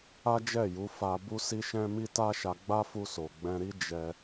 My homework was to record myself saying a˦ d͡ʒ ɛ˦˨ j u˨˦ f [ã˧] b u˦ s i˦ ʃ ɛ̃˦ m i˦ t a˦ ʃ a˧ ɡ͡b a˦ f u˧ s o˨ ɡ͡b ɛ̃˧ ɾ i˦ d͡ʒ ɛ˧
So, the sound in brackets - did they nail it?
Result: no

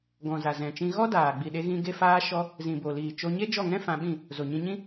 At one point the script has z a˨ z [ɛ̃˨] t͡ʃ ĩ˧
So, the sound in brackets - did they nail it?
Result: yes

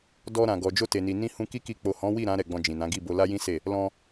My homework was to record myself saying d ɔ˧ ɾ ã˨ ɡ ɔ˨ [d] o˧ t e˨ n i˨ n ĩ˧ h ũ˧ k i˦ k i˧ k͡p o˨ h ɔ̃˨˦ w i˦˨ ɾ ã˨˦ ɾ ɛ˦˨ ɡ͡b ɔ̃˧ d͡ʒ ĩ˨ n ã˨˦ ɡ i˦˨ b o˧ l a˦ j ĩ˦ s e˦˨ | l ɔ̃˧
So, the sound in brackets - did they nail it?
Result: no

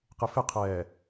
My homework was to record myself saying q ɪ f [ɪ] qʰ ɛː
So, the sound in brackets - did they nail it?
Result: yes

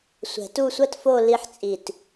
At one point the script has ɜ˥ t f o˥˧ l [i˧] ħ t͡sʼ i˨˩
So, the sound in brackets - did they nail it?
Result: yes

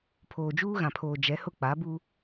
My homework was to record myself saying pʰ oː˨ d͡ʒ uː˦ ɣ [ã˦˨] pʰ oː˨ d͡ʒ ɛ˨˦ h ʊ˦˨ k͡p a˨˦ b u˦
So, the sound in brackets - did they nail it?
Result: no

